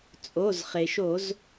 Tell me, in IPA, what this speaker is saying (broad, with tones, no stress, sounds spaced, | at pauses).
t͡sʼ o˩˧˩ z χ e˩ ʃ o˧˩˧ z